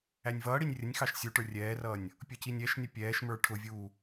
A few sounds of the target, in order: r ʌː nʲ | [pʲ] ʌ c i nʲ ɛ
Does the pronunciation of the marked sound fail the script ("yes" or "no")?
no